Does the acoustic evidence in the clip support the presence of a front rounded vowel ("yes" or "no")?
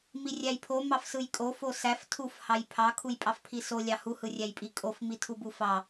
no